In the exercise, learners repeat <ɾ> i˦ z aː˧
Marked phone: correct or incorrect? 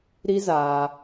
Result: correct